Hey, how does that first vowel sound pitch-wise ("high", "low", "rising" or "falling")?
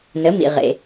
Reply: rising